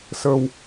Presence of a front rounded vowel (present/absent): absent